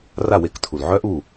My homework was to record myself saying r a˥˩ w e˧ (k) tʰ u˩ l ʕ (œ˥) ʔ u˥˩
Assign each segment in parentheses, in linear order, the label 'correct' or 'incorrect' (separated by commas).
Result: correct, correct